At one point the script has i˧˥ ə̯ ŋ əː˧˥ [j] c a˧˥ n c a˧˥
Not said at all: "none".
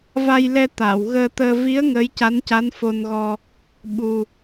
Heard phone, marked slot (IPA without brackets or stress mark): j